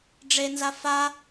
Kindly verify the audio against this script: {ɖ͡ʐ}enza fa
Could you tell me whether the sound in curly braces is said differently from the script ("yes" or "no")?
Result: no